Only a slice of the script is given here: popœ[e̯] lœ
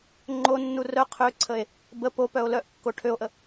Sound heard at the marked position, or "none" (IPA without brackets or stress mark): o̯